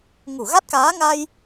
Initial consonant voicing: voiced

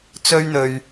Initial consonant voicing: voiceless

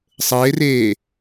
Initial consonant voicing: voiceless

